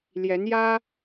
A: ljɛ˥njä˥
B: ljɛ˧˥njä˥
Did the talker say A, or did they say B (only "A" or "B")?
B